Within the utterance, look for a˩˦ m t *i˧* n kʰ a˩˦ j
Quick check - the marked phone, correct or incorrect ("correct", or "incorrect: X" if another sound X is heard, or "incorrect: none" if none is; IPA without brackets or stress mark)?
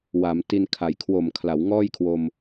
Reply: correct